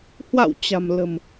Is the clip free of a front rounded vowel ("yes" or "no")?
yes